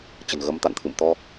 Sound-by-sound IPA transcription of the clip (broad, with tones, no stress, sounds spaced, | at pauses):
t͡ɕ ə̤˨˩ n ɣ ə˨˦ m t̪ a̰˧˨ n t̪ʰ ɨ̰˧˨ m t̪ ɔ˧